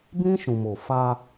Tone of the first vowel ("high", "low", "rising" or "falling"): high